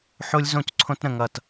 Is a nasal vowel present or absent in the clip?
present